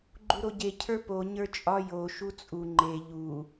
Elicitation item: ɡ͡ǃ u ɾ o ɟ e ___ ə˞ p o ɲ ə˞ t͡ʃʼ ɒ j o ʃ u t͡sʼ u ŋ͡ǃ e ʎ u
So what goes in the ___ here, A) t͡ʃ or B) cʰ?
B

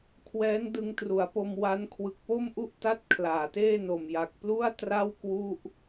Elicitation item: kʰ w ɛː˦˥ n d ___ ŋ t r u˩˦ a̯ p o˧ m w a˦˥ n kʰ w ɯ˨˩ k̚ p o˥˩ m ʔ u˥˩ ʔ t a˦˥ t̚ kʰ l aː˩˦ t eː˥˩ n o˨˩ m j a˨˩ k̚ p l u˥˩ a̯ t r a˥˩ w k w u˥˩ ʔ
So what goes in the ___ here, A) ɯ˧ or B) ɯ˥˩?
A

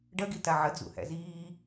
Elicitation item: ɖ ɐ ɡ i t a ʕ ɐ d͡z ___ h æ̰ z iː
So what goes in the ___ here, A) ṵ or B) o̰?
A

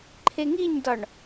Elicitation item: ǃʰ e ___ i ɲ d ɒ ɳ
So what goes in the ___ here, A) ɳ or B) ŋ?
B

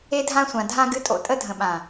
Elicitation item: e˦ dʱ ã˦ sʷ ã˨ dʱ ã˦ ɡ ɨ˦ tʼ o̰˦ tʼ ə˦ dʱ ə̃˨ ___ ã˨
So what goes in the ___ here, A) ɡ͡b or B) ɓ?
B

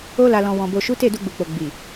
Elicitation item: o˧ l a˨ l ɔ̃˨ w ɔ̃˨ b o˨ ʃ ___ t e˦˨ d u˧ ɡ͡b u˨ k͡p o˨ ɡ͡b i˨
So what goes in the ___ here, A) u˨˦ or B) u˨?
A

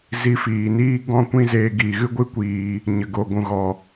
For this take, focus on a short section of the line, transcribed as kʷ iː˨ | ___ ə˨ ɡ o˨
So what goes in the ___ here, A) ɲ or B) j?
A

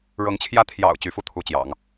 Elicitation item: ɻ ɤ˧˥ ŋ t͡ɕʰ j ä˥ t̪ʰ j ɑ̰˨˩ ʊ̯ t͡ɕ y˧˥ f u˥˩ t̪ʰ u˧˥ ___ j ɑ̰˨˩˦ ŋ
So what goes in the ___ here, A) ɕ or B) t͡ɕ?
B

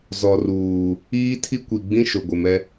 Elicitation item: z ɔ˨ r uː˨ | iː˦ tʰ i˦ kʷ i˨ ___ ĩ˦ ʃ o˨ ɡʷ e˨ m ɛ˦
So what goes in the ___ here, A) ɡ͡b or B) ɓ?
A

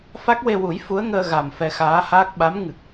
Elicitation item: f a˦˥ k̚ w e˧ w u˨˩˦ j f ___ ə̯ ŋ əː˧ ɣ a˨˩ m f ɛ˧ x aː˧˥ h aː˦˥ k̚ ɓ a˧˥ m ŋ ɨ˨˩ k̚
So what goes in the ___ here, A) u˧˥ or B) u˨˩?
A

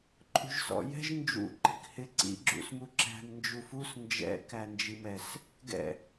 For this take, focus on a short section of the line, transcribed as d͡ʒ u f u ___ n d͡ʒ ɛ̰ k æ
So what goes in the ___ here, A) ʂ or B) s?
B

